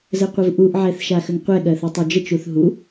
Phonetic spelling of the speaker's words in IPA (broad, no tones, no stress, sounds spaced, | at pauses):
z ə qʷ ə v ʔ u ʔ ʕ ɛ θ ʃ a x ə ŋ qʷ ɛ ɠ ɜ θ u tˤ o d͡ʒ ə t͡ʃ u θ ɦ u